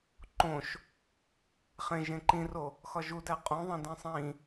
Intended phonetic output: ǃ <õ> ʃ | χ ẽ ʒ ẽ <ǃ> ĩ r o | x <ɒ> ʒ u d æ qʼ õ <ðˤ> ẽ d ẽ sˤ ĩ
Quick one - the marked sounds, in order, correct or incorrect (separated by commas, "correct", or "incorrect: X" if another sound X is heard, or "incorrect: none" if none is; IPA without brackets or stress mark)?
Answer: correct, correct, correct, correct